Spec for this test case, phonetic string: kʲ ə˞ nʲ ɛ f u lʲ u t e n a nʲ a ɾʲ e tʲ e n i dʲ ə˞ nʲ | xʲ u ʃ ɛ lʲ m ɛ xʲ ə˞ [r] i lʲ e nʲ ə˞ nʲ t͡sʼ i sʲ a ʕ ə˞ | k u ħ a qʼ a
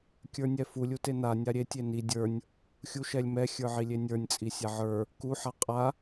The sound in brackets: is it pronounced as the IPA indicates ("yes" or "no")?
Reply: no